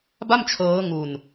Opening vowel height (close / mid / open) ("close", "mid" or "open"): open